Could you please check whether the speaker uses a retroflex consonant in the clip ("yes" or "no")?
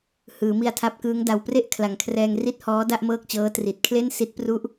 no